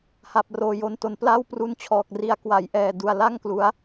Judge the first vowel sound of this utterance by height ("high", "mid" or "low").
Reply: low